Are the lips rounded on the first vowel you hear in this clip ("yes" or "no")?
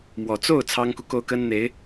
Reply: yes